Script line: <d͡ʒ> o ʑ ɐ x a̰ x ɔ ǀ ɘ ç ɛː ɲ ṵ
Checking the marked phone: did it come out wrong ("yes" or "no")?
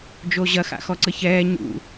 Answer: no